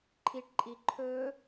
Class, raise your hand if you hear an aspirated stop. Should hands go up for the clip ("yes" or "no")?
yes